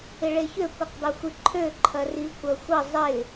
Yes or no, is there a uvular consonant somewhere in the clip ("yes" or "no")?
yes